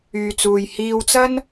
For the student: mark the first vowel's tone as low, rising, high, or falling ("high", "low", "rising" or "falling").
low